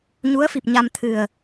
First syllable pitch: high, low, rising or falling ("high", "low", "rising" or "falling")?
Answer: rising